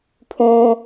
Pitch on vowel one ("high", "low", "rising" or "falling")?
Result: low